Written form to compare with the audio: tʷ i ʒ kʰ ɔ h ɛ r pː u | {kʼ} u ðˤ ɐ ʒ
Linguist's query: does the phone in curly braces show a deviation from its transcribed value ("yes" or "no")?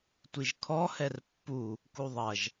yes